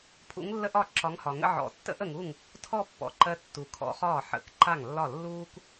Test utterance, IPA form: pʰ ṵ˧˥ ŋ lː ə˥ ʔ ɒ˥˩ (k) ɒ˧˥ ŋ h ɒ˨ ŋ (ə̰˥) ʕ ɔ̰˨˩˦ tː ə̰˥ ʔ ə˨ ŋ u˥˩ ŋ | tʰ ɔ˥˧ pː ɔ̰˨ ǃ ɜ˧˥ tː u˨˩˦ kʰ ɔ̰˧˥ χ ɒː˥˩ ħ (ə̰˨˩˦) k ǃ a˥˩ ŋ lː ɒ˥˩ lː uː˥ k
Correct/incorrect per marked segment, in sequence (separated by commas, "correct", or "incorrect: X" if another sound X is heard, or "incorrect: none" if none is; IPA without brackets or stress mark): incorrect: ǁ, correct, correct